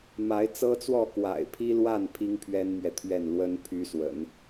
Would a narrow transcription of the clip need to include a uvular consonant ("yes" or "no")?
no